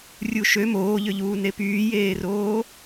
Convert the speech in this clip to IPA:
rʲ u ʃ ø m oː ʎ ø ʎ uː n e p yː j eː r oː

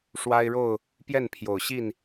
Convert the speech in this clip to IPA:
ʂ w a˦ ɪ̯ ɻ o˥˨ ʊ̯ | p j ɛ˥˨ n pʰ j o˨˩ ʊ̯ ɕ i˥˨ n

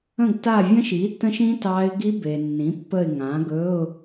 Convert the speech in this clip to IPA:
ə̃˦˨ ɡ t a˦˨ vʲ ə̃˦˥ ʃ i˩˥ t ə̃˦˥ ʃ ĩ˦˥ t ɑ˦˥ ɪ̯ ɡ i˦˥ b e˨ nː ĩ˩˥ pː ə˦˨ ɪ̯ ŋ ã˩˥ ɡ ɵ˧˥˧ ʊ̯

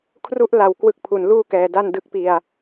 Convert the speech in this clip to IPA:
kʰ r u˥˩ ʔ l a˧ w k w ɯ˦˥ k̚ pʰ u˩˦ n l uː˥˩ k ɛː˩˦ d a˥˩ n d ɯ˦˥ k̚ p i˧ a̯

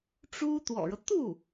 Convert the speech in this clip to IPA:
ʈ͡ʂ u˥ t̪ w ɔ̰˨˩ ɻ ɤ˦ t̪ u˥˩

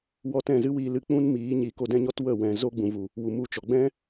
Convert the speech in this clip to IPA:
w ɔ˧ t ɛ̃˦˨ z ɨ˦ w iː˧ l ɨ˧ k͡p ũ˦ n m iː˨˦ ɲ i˨˦ k o˧ d ɛ̃˦ ɲ ɔ˦ t w ə˦˨ w ɛ̃˨ z o˦ ɡ͡b ũ˨ v u˨ | w u˨ m u˧ t͡ʃ ɔ˨ ɡ͡b ɛ̃˦

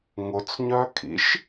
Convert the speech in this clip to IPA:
ŋ ʊ t͡s ɲ œ kʰ ḭ ʃ

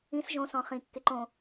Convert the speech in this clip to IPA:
ĩ s ʒ õ s ɔ̃ χ ĩ kː e ǃ õ

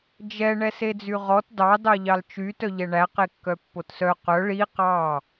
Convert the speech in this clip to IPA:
d͡ʒ ɛ ɳ ɛ s e d͡z y ʁ ɔ t d ɑ d ɑ ʎ ɑ l t͡ʃ y t œ ʎ ɛ ɳ æ q e kː œ pː o t s œ q œ ɭ i q ɑ

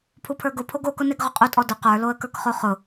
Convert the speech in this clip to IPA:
pʰ u pʰ ə˞ ɡ ʊ pʰ o ɡ o k ʊ n e ɡ ʁ ʊ qʼ u tʼ ɔ d ʊ q ə˞ l o ə̯ k ə˞ k χ o χ ʊ

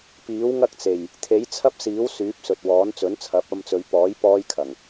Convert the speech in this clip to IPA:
p iː˨˥ w ŋ ɐ˥ k̚ t͡s e˨˩ j | t̪ʰ e˨˥ j t͡sʰ ɐ˥ p̚ s iː˨˥ w s yː˨˥ p̚ s ɵ˨ t̚ w ɔː˨˥ n t͡s ɵ˨˥ n t͡sʰ ɐ˨˥ p̚ ɐ˧ m t͡s ɵ˨˧ ɥ p ɔː˨˥ j p ɔː˥ j kʰ ɐ˨˩ ŋ

